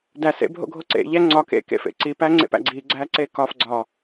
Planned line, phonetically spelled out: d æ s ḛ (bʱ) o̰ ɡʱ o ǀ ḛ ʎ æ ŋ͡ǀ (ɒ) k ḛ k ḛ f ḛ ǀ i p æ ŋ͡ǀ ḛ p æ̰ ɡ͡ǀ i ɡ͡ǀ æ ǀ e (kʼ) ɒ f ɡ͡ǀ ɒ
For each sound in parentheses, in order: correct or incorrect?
correct, correct, incorrect: k

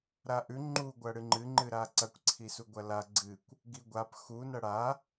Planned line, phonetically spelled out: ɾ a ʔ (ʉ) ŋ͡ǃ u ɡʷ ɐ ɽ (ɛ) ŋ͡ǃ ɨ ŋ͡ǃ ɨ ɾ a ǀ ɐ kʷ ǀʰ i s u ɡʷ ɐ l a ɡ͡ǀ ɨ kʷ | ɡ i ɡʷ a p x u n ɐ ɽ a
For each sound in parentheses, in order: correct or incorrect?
correct, incorrect: ɨ

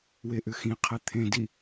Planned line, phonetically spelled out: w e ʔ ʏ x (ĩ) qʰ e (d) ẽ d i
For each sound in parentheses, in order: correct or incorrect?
correct, incorrect: t̪ʰ

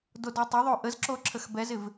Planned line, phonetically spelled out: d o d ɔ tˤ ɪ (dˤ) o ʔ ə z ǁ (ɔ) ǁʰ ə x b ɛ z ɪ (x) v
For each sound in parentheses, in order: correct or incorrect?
incorrect: ðˤ, incorrect: o, incorrect: none

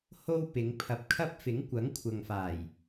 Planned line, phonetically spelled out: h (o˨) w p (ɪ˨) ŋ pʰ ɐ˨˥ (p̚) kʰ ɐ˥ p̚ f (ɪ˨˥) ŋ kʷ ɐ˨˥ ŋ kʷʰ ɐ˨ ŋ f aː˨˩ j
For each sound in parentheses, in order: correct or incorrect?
incorrect: o˥, incorrect: ɪ˨˧, correct, correct

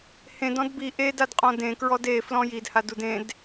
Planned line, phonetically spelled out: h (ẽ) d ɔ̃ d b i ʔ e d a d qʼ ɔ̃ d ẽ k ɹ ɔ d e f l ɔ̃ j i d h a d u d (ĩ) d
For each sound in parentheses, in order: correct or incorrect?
correct, incorrect: ẽ

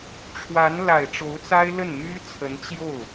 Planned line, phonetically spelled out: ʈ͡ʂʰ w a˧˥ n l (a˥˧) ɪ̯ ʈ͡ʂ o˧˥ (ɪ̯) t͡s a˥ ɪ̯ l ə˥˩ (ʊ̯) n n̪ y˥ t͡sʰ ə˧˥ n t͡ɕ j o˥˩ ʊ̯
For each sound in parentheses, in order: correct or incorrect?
incorrect: a˨˩, incorrect: ʊ̯, incorrect: none

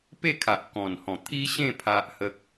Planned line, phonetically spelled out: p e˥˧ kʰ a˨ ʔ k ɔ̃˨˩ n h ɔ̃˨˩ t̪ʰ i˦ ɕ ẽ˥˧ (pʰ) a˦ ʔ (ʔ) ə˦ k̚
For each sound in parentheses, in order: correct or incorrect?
correct, incorrect: h

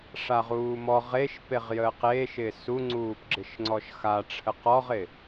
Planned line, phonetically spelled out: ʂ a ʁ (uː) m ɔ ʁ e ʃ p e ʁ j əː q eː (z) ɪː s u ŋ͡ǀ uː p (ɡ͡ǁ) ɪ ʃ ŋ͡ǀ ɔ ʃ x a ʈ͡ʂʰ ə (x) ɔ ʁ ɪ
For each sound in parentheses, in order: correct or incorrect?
correct, incorrect: ʃ, correct, incorrect: q

